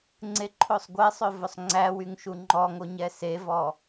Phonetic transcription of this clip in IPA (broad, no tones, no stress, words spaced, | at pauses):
ŋ͡ǀeǃʰosˤɡʷesˤø vɵsˤŋ͡ǀæwyŋ ʃuŋ͡ǃɔŋo ɲɛsevɔ